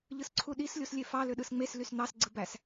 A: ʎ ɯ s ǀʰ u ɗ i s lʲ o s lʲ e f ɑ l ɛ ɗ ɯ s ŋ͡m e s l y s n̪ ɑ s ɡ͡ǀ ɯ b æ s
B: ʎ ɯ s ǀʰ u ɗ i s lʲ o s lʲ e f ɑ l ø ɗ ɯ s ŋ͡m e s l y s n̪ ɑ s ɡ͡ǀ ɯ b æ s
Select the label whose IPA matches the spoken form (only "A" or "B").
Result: B